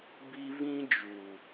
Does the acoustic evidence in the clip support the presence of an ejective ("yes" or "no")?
no